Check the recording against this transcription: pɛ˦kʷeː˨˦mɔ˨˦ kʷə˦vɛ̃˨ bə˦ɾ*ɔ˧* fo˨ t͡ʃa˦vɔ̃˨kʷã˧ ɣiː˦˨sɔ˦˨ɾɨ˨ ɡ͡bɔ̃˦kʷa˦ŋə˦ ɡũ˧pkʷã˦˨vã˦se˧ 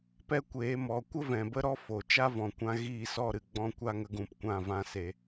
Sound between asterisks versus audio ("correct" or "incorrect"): incorrect